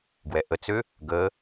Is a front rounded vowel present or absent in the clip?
present